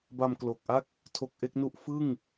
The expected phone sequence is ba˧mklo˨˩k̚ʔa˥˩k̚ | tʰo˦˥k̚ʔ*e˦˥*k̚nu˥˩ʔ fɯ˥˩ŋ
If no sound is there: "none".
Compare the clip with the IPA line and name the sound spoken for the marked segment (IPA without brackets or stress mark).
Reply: e˦˥